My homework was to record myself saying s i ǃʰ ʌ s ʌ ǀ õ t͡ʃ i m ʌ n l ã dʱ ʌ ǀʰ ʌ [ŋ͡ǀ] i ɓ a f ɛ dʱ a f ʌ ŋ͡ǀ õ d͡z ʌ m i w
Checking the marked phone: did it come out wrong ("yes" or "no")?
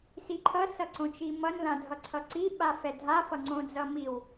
yes